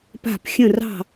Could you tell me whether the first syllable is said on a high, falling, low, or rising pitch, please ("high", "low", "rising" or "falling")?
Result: falling